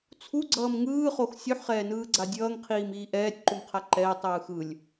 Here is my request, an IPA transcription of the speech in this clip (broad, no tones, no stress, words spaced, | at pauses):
t͡sʰuɡ͡ǀʌːm ŋɯːχox sʲuħχɛːnɯːɡ͡ǀa dʲʌːŋqʰiːmiː ʔɛːtʲǃumqʰa ǃɛːtˤɯː xɯlʲ